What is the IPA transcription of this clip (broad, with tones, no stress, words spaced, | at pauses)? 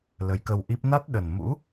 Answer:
lə˨˦jkə˧wʔi˦˥p̚ na˦˥t̚ɗə˨˩n mṵ˧˥